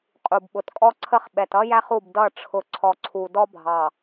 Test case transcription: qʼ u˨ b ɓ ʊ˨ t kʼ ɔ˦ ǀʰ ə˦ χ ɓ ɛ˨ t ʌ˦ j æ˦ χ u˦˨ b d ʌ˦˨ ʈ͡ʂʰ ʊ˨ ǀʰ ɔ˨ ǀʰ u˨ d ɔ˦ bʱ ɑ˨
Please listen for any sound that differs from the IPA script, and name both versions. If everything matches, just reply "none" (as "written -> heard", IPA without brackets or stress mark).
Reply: none